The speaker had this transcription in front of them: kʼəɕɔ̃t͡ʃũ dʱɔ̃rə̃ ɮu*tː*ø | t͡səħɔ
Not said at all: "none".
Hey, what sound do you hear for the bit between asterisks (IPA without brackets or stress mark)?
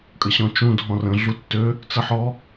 tː